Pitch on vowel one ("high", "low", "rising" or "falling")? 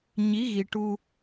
rising